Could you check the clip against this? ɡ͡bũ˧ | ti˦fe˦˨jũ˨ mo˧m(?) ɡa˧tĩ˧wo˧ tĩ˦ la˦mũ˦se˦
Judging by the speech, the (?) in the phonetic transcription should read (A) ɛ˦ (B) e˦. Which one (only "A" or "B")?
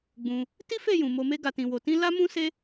B